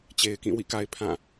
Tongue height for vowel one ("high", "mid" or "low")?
mid